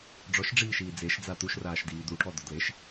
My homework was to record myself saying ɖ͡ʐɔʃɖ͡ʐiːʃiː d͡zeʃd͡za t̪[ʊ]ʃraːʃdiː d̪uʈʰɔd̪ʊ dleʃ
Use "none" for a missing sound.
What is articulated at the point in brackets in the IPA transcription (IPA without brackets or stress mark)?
u